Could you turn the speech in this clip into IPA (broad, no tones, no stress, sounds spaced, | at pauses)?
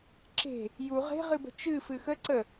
ǁ e̤ | j u ʁ e̤ ʁ ɨ b ə̤ t͡ʃ ɨ f ɨ x ə ǀ ə